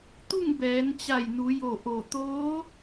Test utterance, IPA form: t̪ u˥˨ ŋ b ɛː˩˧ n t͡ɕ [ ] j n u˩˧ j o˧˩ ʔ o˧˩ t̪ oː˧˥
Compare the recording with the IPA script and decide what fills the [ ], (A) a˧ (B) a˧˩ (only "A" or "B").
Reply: B